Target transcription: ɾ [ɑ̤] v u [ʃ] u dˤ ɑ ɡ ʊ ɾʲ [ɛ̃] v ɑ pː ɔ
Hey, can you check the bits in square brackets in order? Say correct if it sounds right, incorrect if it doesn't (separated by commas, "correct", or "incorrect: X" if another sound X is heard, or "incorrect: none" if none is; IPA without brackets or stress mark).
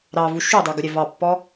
incorrect: ɑ, correct, incorrect: ɛ